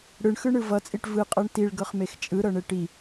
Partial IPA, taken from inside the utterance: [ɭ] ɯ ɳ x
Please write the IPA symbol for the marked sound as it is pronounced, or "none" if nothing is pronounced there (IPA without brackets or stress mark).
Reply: ɽ